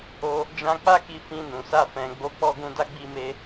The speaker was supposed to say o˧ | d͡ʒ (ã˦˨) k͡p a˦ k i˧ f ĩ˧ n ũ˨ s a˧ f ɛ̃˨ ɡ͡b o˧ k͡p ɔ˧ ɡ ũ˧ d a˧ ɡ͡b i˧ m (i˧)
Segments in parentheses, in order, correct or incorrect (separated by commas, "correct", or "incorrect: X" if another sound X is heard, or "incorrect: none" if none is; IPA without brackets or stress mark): incorrect: ã˧, incorrect: e˧